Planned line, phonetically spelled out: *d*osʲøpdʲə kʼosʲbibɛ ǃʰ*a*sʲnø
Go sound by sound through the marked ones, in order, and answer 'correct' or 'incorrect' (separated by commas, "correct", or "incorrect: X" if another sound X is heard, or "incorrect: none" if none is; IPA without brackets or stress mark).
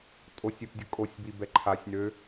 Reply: incorrect: tʼ, correct